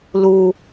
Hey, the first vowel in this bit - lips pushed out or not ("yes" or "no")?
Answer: yes